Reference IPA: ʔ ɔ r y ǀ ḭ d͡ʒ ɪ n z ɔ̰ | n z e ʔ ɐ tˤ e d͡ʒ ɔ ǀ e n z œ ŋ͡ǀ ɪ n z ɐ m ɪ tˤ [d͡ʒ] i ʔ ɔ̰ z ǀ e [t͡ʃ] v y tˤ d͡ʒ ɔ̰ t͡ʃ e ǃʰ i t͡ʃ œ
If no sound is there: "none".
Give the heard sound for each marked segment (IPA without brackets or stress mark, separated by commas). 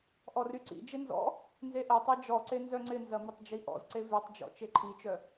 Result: d͡ʒ, none